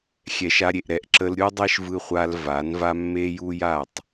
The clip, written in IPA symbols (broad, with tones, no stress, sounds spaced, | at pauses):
xʲ ɛ˨ ʃ a˧ ɾʲ e˨ ʔ ɾ ɛ˧ ʔ ǁ ə˧ l ɾʲ u˦ dˤ e˦ ʃ v ɯ˧ χʷ a˧ l v a˨˦ n v a˦ mː e˦ j u˦ j a˦˨ tˤ